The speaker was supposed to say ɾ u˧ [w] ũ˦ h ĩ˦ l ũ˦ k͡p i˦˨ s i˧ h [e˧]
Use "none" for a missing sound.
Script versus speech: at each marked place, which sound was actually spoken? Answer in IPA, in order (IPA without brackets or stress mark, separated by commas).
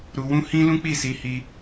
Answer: w, i˧